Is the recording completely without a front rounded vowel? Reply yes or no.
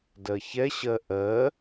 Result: yes